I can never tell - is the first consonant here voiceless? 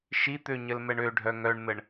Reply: yes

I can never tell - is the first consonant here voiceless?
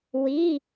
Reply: no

